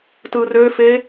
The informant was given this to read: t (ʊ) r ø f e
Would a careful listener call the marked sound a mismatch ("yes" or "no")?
yes